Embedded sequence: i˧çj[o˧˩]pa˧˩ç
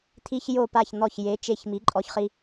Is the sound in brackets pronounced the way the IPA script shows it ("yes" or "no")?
yes